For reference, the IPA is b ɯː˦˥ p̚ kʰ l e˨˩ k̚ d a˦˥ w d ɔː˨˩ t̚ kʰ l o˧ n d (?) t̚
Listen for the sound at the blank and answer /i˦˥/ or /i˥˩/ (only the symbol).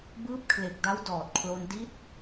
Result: i˦˥